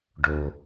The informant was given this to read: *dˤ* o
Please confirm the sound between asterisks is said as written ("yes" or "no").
no